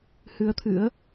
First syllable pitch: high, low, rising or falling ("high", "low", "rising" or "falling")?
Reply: rising